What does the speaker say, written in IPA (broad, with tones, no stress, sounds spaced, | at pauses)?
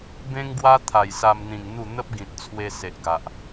b ẽ˦ ŋ ɡ w a˦ t̪ʰ a˨˩ j s a˧ m n̪ ĩ˨˩ ŋ n̪ u˥˧ n̪ ə˦ p̚ ɡ ĩ˨ t̚ t͡sʰ w e˧ s e˨ ʔ ɡ a˨ ʔ